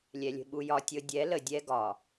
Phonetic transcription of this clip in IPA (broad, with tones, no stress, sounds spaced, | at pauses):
lʲ ɛ˨ lʲ ə̤˨ ɓ u˨ j ɒ˨ tʲ ɤ˨ dʲ ɛ˨˦ l ə˨ dʲ ɛ˦ ɡ ɒ˨